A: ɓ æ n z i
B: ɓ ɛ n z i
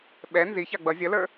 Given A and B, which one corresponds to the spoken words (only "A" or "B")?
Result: B